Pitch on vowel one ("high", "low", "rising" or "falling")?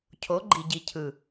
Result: rising